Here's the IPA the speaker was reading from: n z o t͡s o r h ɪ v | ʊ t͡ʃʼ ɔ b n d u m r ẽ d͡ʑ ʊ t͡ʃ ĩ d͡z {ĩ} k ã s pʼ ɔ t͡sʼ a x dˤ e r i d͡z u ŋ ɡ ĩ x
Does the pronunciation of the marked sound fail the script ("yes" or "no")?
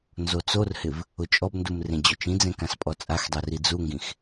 yes